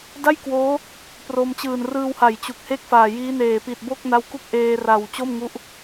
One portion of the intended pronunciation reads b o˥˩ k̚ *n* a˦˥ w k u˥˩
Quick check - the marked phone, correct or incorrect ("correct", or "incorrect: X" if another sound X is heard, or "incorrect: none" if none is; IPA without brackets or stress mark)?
correct